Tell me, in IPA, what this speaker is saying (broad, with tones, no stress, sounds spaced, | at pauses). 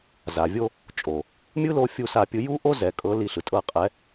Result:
z a˨ vʲ o˦ | t͡ʃʼ o˨ | mʲ ɯ˦ l o˧ fʲ u˦ s a˦˨ pʲ ɯ˦ j u˦ ʔ o˦ z ɛ˨ kʼ ɤ˨˦ l i˧ ɬ ɯ˨ tʼ ɤ˦ qʼ ɛ˨˦